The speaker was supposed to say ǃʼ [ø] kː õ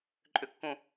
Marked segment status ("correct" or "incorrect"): correct